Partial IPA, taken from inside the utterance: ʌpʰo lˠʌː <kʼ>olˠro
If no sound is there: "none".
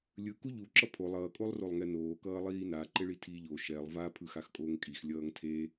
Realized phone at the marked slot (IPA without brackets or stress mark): kʼ